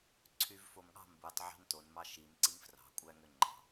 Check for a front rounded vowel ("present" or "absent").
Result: present